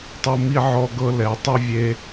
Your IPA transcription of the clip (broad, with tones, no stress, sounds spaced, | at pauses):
tˤ ɤ˦ m i˦ ʕ ɔ˦ ɡ ɤ˦ l ɛ˨ tˤ ɯ˦ vʲ e˦